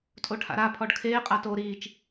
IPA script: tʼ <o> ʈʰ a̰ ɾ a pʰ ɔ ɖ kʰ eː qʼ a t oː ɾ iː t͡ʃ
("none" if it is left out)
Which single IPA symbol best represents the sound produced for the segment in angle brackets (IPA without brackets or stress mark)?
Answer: o